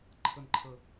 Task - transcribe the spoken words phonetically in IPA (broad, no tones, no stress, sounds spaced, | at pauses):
ǃʰ ə n ǃʰ ə